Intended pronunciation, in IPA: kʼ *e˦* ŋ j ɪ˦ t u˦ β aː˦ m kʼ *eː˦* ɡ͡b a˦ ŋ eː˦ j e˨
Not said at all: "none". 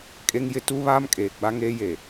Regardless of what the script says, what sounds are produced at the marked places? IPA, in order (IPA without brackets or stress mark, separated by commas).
e˦, eː˨